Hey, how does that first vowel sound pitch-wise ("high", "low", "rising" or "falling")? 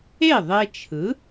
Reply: falling